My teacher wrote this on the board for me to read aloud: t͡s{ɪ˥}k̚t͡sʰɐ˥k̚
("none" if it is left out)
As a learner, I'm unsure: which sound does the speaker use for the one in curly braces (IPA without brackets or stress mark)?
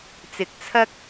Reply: ɪ˨˥